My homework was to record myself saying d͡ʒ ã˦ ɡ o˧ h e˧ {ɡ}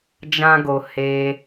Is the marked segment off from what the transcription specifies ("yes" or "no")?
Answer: yes